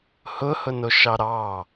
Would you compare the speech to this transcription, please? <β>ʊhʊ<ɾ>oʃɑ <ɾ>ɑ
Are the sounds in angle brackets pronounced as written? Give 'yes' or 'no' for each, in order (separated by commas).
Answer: no, no, yes